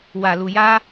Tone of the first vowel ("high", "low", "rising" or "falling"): low